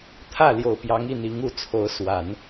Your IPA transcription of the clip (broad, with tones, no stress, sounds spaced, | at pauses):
t̪ʰ ä˥˩ l j o˨˩ ʊ̯ p j ɑ˧˥ ŋ i˥˩ n̪ i˧˥ ŋ u˥˩ t͡sʰ o˧˥ ʊ̯ s w a˨˩˦ n